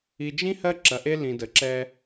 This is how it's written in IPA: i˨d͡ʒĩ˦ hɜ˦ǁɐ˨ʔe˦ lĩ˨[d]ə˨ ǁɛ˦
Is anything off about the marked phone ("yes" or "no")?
no